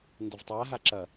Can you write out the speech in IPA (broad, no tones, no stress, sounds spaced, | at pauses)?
n d ɐ v tˤ a ɦ a ǁ ɐ